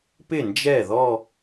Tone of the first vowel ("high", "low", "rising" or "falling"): falling